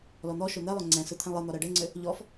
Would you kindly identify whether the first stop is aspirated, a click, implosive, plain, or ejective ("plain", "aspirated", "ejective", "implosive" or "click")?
click